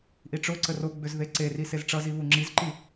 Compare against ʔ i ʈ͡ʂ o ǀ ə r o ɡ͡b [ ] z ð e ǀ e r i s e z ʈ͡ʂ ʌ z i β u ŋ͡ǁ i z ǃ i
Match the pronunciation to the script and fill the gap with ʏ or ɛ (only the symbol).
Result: ʏ